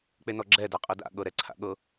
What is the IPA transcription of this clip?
k͡penɔɡ͡ǁɛ daqʼɤda̰ ɠɤɾɛǀʰa̰ɠɤ

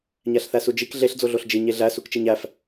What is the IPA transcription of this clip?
ɲæɬθæsud͡ʒik ɮeɬ d͡zoɮoɬd͡ʒi ɲeɮæ sukt͡ʃiɲæf

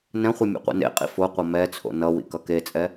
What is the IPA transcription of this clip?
nɛ̃χʷɯ mʲɛ̰qʷḭnḛqʼḭ fo qʷʌmɛt͡sʰo̰ nʌwḭ kʌket͡sʼɛ

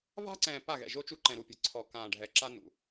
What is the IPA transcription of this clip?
va̤˦ǀɛ̃ː˨ pa˦˨ɣɛ̰˨ʒo˦ t͡ʃu˦ǃɛ̃˨ɾu˨pʲe̤˨ ǀʰɔ˨kãː˨ ɖʱɛ˨ǁa˦nṵ˨

